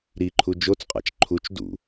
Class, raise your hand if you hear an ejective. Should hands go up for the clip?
yes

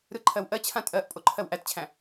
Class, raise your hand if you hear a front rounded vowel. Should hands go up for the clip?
no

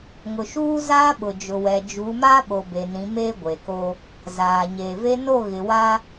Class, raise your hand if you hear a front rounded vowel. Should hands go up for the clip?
no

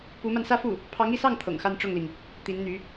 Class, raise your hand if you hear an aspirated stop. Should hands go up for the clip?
yes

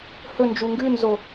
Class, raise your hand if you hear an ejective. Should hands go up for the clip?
no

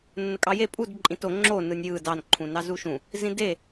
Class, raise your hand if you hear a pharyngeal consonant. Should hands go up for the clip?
no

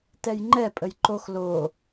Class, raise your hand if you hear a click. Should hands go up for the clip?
yes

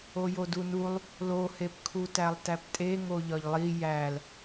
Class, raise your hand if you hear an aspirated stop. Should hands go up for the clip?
yes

